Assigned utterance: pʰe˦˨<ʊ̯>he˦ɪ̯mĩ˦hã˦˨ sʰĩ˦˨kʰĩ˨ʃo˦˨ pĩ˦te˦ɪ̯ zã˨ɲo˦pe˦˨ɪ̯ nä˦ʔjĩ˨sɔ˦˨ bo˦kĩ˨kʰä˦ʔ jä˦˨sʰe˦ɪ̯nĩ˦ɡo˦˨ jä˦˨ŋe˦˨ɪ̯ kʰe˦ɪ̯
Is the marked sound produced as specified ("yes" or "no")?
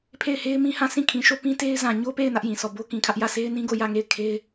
no